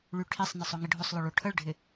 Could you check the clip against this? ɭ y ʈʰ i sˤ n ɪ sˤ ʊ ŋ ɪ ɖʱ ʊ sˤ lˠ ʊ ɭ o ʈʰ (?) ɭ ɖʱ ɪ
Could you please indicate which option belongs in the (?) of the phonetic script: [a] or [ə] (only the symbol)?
ə